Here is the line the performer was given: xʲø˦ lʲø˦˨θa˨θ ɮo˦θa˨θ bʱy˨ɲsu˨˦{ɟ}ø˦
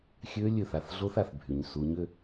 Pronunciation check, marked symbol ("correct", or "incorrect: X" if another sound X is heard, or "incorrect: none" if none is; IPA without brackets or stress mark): incorrect: ɲ